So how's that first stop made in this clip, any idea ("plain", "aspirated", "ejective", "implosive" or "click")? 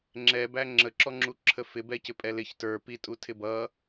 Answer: click